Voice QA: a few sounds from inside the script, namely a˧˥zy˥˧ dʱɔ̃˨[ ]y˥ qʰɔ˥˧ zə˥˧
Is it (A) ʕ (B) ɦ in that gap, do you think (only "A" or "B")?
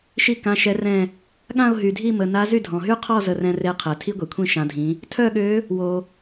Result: B